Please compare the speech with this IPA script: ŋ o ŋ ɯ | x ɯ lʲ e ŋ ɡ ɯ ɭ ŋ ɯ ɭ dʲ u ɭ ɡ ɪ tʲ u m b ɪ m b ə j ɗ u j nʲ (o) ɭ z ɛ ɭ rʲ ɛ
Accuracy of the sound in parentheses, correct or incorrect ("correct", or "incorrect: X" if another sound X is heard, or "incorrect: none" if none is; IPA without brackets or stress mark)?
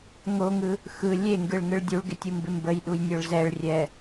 incorrect: ɵ